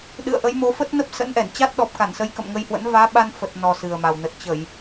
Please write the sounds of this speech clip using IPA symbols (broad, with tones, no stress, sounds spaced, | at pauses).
ɗ ɨ̰˧˨ ə̯ ʔ ə˨˦ j m o˨˦ f ə˦˥ t̚ n ə˦˥ p̚ s ə̰˧˥ n ʔ ɛ˧˩ n t͡ɕ a˦˥ t̚ ɗ ɔ˨˩ p̚ k a˧˩ n s ə˨˦ j k ə̰˧˨ m ŋ ə˧ j h w ə̰˧˥ n v aː˨˦ ɓ a˧ n f ə˨˩ t̚ n ɔ˨˩ s ɨ˨˩ ə̯ m a˨˩ w n ə˨˩ t̚ t͡ɕ ə˧˩˨ j